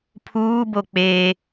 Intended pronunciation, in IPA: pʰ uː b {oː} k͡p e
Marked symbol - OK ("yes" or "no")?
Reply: no